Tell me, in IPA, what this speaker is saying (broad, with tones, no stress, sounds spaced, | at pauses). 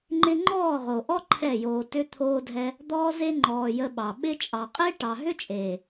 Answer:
ŋ͡ǃ ɪ˦ ŋ͡ǃ ɔː˦˨ ʁ o˨ ʔ ɔ˦ ǃʰ ɛ˦˨ j oː˧ t ʏ˧ t̪ʰ oː˧ dʱ ɛ˧ | d̪ ɔː˧ z e˧ ŋ͡ǃ ɔː˨ j ə˧ ɓ ɑ˨ ɓ ɪ˧ t͡ʃʼ ɑ˨ qʼ e˦ ʈ ɑ˨ ɦ ʏ˦ t͡ʃʼ eː˨